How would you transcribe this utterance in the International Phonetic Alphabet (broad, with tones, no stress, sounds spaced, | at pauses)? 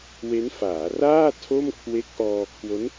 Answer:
w e˦˥ n f aː˩˦ r aː˥˩ tʰ o˥˩ m kʰ w e˦˥ k̚ ʔ ɔː˧ kʰ w o˦˥ n